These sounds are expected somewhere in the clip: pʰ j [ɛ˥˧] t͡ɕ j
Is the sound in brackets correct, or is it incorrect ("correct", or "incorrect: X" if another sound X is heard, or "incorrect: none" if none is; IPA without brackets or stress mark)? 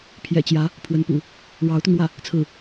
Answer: incorrect: ɛ̰˨˩